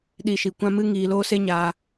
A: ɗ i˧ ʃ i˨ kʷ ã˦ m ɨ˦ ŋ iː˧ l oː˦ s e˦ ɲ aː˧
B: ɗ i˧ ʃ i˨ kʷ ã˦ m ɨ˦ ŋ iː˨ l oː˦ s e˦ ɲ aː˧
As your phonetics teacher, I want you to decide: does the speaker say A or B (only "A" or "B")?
A